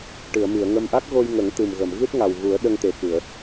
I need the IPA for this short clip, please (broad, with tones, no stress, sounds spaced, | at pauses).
ʈ ɨ˨˩˨ ə̯ m i˨˩˨ ə̯ ŋ ə˧ m ʔ a˦˥ k̚ ɣ o˧ j ŋ ə˨˩˦ ŋ t̪ ɨ˨˩ m ɣ ə˨˩˨ m ɣ ɨ˦˥ t̚ ŋ a˨˩ w ɣ u˨˩˦ ə̯ ɗ ə˧ ŋ t̪ e˨˩ k ɨ˨˩˨ ə̯